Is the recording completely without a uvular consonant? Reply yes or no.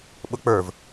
yes